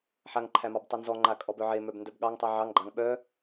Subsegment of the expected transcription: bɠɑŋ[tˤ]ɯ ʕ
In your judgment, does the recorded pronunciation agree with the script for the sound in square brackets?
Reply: yes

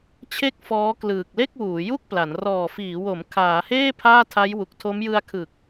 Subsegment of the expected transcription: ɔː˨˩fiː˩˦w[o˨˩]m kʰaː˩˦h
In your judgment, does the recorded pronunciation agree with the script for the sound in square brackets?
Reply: no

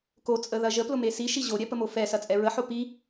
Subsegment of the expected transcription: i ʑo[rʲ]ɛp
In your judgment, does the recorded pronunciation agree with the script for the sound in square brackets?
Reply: no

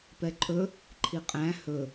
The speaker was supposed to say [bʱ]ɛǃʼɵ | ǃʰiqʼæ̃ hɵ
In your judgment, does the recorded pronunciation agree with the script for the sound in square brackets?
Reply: no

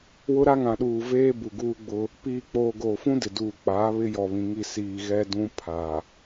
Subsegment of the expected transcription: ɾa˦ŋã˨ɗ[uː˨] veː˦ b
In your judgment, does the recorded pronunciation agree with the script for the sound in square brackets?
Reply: yes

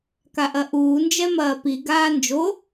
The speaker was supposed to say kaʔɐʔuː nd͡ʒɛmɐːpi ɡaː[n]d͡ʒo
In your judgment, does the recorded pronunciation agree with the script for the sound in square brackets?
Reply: yes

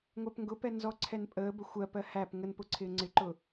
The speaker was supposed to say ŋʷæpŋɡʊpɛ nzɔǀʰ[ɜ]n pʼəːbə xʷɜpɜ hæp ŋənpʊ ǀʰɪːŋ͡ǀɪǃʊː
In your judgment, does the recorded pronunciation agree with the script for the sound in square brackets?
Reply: no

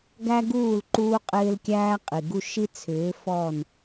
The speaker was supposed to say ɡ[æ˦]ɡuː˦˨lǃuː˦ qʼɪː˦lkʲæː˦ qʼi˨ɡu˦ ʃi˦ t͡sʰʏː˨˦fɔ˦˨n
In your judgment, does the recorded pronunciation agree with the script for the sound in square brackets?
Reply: yes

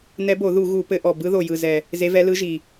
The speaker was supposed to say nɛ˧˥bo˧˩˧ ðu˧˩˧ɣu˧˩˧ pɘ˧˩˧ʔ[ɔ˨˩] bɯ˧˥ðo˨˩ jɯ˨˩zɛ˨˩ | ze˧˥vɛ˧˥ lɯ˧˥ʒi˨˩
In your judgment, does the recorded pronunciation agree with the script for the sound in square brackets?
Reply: yes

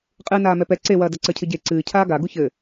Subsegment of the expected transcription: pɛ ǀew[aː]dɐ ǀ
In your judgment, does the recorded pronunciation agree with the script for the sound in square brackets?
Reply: no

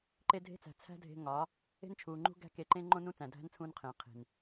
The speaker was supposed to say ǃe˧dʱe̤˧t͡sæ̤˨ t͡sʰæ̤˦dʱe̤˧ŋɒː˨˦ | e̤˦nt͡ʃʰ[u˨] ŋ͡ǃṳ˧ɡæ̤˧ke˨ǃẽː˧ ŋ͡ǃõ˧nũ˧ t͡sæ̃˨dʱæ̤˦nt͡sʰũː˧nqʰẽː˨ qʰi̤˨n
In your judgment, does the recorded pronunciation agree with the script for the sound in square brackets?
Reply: no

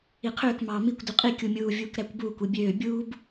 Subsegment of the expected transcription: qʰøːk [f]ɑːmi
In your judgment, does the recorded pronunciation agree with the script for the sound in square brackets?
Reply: no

